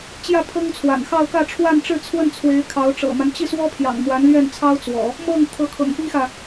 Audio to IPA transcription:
t͡ɕ j ä˥˩ pʰ ɤ˥ ŋ t͡sʰ w a̰˨˩ n x ɑ˥˧ ʊ̯ k ä˥˧ ʈ͡ʂʰ w a˥˧ n ʈ͡ʂ ɻ̩˥˧ t͡sʰ w ə˥˩ n t͡sʰ w e˧˥ ɪ̯ kʰ ɑ˧˥ ʊ̯ ʈ͡ʂ ɤ̰˨˩ m a˦ n t͡ɕ i˥˩ s w ɔ˥ pʰ j ɑ̰˨˩ ŋ m w a˧˥ n l ɥ ɛ˥˩ n t͡sʰ ɑ˥ ʊ̯ t͡s w ɔ̰˨˩˦ | m ɤ˥˩ ŋ t̪ʰ ɤ˧˥ kʰ ɤ̰˨˩ ŋ p i˥ x ä˨

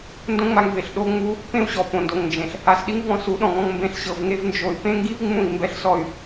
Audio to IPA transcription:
n d õ˦ ŋ͡m a˧ ŋ v e˨ ɬ ɗ o˦ ŋ͡m u˦ | p ẽ˦ u̯ ɕ ɔ˨ p õ˨ n d o˨ ŋ n d͡ʒ ẽ˨ ɬ | a˧ s ɗ i˦ ŋ v ɔ̃˧ s u˨˦ ɗ ɔ̃˨ ŋ ɔ̃˧ ŋ m b ẽ˧ ɬ ɕ ɤ˧ v ŋ e˦ v n d͡ʒ o˧ y̯ p ẽ˦ ŋ ɡ i˦ v ŋ͡m ũ˦˨ i̯ m b ɛ˦ ɬ s ɔ˦˨ y̯

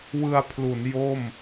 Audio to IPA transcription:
w ɯ˧ a̯ pʰ l u˩˦ n j o˥˩ m

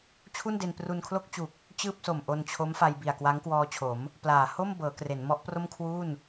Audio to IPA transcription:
t͡ɕʰ u˥˩ n d e˧ n p r u˧ n kʰ l o˥˩ k̚ t͡ɕ u˨˩ k̚ | t͡ɕ ɯː˥˩ p̚ s o˨˩ m ʔ o˧ n t͡ɕʰ o˦˥ m f a˧ j b i˨˩ a̯ k w a˦˥ ŋ k w ɔː˧ t͡ɕʰ o˩˦ m | p l aː˩˦ h o˥˩ m b ɤː˩˦ k r e˩˦ n m ɔ˦˥ ʔ p r o˥˩ m kʰ w u˥˩ n

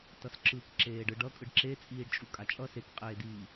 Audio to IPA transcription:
t ʌ s ǁ ɯ k ǁ eː ɖ ɯ ɖ ʌ kʼ ɯ ɖ ǁ e t͡sʼ iː ɖ t͡ʃʼ u kʼ a t͡ʃʼ ʌ s e k qʼ eː d iː

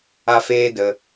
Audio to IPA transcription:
a˦ f eː˦ d ə˧

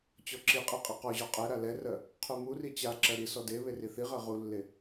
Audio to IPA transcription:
t͡ɕ ɔ ǁ i qʼ i qʼ i q ɔ ʑ ɔ qʼ ɛ ɾ a l ɛ r ɜ | qʰ u m u r i t͡ɕ a ǁ ɜ ɾ i s ɔ d e β e r i θ i ʁ ɜ ʁ u lː e

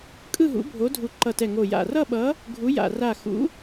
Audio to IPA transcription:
kʼ ɯ˥˧ ɦ ṵ˨˥ bʱ o˨˥ dʱ u˧˩ ǃ ʌ˧˩ t ɛ˧˩ ŋ o˧˩ j a̰˧˩ r ʌ˥˧ ɓ ʌ˨˥ | ɡʱ u˨˥ j a̰˧˩ r a˧˩ x ṵ˨˥

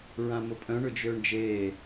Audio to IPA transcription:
ɹ ã m ʊ pʼ œ̃ ɳ ʊ d͡ʒ øː ɳ d͡ʒ eː

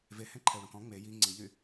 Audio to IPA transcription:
v e h ẽ ǃʰ ɛ u̯ ɾ ɔ̃ k ɔ̃ ŋ͡m e j i ŋ͡ǀ i ʎ y

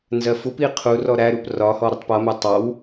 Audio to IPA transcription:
n z ɜ f u p i qʰ u r ɔ ɾ æ ɾ u p r ɒ h ɔ ɾ ə tˤ p ʌ m æ tˤ ɑ w

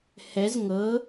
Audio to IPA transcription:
h ɛ z ŋ ɤ

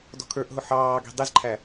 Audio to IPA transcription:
d ɔ̤ kʰ ə˞ ʔ ɦ ʊ ħ ɑː ɡ i̤ dˤ ɪ z ǃʰ æ

